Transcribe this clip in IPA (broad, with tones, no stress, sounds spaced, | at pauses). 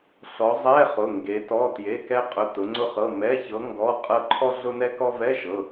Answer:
ɬ ɔ˩˧ zˤ ɛ˧˥˧ χ ʊ˩˧˩ ŋ ɡ e˩˧ t ɔ˩˧˩ t j e˩˧˩ k ɛ˧ qʼ ʊ˩˧˩ t ʊ˩˧ ŋ͡ǀ ʊ˧ χ ɤ˩˧˩ m ɛ˩˧˩ ç ɤ˩˧ ŋ ɡ ɔ˩˧˩ qʼ ɤ˧ ǃʰ ɔ˧ ɮ ʊ˧ n ɛ˧ k ɔ˧ v ɛ˧˥˧ ʃ ɤ˩˧˩